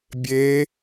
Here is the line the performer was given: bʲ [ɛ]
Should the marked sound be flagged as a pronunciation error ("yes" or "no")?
yes